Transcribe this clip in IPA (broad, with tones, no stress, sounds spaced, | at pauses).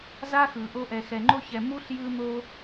z a˥ x ɯ˨ ʔ o˦ ʔ ɛ˨ x ɛ˨ ŋ͡ǃ o˦ ç ɛ˨ m u˥ ɬ j ɯ˦ n̪ o˦